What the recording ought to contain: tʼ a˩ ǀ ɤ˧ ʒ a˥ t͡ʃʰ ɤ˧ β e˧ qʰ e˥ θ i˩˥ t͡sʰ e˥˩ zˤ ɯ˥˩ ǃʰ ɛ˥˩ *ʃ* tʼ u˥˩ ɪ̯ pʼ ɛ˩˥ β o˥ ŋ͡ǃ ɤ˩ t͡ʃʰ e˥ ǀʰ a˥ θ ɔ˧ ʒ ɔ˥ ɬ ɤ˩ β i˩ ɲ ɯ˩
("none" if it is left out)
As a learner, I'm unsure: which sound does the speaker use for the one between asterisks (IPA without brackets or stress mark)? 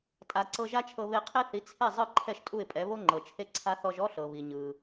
ʃ